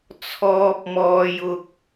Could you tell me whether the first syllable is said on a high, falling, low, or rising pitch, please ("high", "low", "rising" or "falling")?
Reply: high